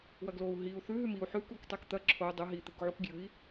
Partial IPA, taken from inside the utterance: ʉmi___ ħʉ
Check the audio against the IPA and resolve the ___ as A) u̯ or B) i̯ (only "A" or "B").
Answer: A